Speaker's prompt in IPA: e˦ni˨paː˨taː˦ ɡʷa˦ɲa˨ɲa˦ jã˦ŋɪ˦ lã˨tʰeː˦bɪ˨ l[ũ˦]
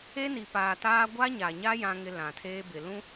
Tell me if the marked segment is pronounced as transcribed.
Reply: yes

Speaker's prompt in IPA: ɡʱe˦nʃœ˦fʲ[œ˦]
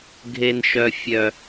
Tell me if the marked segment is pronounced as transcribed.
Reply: yes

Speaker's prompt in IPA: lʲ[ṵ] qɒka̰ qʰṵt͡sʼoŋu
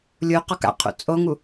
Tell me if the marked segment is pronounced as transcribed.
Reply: no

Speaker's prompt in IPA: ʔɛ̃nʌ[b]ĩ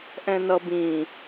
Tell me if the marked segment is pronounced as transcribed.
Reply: yes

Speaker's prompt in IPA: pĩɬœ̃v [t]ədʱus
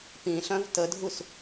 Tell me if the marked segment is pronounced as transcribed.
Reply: yes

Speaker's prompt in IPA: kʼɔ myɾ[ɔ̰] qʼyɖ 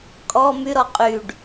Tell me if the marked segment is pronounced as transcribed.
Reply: no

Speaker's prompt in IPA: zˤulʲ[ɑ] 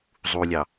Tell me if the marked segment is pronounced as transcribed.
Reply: yes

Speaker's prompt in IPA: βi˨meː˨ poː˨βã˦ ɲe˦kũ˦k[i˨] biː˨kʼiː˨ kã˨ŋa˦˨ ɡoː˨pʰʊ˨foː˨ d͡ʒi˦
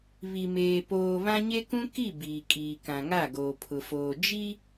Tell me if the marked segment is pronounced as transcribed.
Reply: no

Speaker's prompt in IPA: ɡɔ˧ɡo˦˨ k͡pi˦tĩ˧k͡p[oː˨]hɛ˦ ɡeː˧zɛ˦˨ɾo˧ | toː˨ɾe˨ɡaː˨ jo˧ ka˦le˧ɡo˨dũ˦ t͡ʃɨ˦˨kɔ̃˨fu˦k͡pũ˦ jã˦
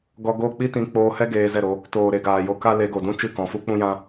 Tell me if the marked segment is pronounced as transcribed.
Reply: no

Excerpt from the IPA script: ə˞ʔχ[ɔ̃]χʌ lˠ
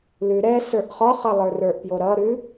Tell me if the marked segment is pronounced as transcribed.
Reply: no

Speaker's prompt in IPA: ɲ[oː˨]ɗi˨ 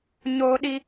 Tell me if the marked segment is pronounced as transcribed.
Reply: yes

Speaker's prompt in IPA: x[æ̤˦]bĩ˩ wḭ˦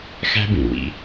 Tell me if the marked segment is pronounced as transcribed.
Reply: yes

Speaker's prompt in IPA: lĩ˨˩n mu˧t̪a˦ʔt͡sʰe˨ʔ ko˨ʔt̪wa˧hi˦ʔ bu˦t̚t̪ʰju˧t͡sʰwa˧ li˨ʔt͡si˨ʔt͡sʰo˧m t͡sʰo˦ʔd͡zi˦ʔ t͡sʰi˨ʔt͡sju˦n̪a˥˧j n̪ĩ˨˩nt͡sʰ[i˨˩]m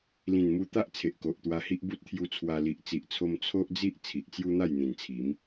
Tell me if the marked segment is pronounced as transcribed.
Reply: no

